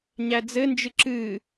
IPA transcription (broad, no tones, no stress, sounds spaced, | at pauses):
ɲ æ d͡z ɘ n d͡ʒ ɨ ǁ ɨ